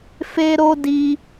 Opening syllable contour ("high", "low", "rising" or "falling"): high